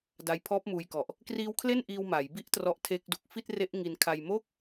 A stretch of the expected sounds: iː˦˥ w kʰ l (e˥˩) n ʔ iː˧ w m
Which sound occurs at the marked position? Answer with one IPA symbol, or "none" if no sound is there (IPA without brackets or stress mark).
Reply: e˥˩